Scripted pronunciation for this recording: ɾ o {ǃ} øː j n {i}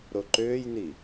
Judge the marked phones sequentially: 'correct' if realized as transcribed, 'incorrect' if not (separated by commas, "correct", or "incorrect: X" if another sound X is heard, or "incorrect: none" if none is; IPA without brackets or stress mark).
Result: correct, correct